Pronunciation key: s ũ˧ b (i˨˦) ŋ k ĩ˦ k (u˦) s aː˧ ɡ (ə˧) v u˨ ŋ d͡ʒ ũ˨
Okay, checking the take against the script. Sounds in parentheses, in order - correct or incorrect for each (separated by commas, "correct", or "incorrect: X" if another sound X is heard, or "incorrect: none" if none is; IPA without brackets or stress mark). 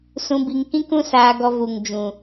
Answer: incorrect: i˧, incorrect: ũ˦, incorrect: ɔ˧